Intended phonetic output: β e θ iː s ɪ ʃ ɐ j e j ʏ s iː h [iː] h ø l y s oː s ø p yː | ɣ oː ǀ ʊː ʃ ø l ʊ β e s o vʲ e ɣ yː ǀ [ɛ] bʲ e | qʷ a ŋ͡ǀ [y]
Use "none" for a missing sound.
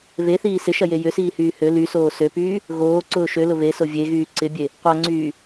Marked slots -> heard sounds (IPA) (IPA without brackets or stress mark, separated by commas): yː, ɪ, yː